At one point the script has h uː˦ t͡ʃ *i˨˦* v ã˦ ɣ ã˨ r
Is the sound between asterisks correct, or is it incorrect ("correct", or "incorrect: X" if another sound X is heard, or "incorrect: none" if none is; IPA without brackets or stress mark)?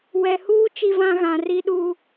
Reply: incorrect: i˦